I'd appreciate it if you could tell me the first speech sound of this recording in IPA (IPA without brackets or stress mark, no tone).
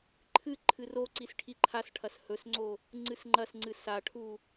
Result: ǃʰ